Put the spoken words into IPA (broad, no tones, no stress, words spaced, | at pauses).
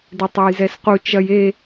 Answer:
detˤɛjzɛsqu t͡ʃɐj e